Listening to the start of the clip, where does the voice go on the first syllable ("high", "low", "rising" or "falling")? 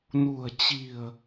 low